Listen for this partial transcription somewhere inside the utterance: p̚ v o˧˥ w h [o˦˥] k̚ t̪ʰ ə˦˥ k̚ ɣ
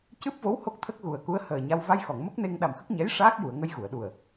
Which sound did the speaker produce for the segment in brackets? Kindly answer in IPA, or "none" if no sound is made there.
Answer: o˦˥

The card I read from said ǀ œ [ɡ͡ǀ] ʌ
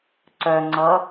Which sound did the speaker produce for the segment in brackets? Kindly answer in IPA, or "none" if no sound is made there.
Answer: ŋ͡ǀ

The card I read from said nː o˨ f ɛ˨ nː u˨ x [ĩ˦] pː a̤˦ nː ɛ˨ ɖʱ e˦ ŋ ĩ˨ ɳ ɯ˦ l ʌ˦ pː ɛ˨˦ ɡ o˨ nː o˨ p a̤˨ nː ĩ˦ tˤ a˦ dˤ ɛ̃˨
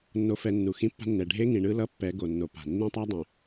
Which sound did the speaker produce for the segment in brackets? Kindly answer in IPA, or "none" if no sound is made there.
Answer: ĩ˦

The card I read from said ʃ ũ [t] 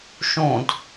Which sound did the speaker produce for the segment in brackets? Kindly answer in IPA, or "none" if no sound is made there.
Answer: d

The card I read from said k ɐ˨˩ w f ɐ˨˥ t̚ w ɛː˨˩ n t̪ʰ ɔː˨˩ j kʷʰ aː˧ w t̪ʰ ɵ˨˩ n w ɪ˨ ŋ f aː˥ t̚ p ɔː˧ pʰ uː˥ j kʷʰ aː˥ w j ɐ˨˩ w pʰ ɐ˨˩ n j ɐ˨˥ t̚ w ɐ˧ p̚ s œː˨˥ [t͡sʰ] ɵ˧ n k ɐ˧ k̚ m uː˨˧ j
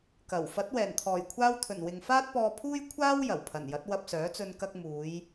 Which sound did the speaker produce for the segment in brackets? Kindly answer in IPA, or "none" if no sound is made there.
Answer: t͡s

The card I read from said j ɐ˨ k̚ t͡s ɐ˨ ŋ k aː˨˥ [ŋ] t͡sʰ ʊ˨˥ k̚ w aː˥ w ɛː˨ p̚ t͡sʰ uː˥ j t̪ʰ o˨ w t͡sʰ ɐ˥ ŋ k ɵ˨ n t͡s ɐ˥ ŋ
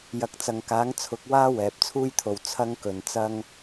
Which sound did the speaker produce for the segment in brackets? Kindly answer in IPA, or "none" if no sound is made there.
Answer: ŋ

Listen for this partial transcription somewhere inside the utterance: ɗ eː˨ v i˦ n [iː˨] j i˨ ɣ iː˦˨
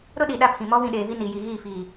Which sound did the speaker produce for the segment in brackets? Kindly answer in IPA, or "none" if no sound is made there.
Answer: iː˨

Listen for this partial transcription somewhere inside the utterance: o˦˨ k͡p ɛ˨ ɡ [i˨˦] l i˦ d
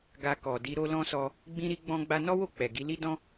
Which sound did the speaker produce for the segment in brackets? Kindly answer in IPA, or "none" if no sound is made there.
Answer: i˨˦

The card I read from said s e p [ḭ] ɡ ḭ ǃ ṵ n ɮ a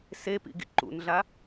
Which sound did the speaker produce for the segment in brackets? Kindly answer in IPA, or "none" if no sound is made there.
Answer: ḭ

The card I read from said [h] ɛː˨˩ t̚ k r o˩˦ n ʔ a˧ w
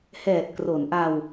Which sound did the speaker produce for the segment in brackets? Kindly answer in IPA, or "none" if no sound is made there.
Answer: h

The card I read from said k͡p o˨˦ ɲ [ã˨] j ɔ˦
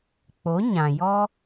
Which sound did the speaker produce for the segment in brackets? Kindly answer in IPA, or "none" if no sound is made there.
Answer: ã˨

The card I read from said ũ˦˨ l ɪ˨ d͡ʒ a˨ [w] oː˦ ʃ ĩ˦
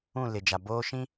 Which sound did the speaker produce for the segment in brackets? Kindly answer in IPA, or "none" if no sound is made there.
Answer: b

